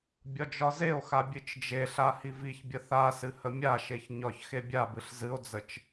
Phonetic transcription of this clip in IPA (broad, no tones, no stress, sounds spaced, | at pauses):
bʲ ɒ d͡ʒ ɒ z e o̯ x a bʲ ɨ t͡ʃ d͡ʒ e ɬ a h i v i ç bʲ ə θ a s ɨ h ə mʲ a ʃ e ç ɲ ɒ ç x e bʲ a b ɨ ɬ z ɨ o̯ d͡z ə t͡ʃ